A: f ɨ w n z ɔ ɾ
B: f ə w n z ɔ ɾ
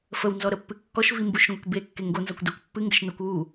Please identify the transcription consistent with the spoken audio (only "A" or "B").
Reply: B